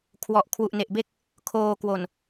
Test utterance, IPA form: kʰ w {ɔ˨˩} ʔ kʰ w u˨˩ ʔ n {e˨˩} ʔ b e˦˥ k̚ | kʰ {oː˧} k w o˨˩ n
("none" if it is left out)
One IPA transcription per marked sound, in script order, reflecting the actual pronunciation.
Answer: ɔ˨˩, e˨˩, oː˧

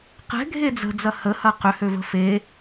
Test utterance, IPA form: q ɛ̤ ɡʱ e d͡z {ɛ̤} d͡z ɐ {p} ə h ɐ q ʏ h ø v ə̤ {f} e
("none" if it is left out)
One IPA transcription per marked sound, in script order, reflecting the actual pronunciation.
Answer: ə̤, h, f

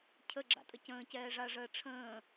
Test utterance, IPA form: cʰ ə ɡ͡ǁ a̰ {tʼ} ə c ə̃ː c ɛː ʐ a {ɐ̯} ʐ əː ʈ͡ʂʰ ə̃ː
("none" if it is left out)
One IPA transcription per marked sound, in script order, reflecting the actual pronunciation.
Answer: tʼ, ɐ̯

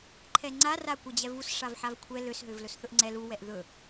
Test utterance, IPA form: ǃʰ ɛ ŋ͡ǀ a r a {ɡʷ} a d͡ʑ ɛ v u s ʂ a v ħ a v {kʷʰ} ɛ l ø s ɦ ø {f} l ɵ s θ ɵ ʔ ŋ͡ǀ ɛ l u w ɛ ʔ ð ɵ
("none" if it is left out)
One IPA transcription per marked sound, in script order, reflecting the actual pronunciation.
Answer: kʷ, kʷʰ, v

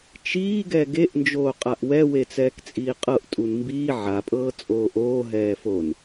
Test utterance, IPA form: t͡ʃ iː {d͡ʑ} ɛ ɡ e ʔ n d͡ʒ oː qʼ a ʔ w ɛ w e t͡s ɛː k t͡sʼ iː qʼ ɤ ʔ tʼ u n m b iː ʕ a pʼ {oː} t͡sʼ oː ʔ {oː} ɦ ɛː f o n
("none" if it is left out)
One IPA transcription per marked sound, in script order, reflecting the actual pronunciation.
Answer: ɡ, ɤː, oː

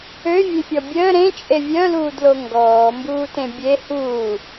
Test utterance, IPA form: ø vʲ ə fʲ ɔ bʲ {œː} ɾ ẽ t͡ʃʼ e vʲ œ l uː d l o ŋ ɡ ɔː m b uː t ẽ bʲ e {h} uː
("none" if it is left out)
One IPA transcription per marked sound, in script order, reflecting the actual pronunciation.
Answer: əː, h

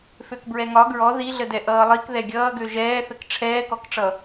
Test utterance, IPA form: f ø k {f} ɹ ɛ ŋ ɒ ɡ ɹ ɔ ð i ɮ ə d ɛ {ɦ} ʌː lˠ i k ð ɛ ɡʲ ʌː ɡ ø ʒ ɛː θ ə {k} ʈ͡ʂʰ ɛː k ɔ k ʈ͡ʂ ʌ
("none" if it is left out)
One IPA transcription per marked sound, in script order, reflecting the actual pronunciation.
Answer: b, ʔ, k

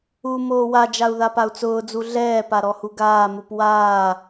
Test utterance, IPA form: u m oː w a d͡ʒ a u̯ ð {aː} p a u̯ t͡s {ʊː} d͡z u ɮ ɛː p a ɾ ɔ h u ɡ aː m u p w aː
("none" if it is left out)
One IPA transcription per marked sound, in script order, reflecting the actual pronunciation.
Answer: a, ʊː

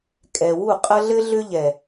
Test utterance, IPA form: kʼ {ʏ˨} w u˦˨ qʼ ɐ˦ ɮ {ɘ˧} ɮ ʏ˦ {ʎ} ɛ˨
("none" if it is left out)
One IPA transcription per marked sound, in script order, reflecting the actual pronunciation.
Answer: ɛ˨, ɘ˦, ʎ

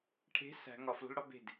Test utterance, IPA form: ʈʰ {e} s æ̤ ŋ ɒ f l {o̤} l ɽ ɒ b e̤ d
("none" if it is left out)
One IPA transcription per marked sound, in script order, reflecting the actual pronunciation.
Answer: e̤, o̤

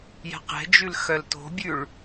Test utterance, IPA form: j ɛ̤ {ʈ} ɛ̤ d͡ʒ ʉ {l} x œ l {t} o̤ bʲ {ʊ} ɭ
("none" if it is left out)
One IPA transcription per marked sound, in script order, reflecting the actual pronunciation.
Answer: q, l, t, ʉ

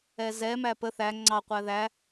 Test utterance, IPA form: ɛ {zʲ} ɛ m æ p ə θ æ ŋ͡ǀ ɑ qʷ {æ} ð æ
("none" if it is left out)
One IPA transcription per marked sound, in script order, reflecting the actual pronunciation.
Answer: z, æ

